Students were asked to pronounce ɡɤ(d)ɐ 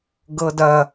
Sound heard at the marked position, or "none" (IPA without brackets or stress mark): d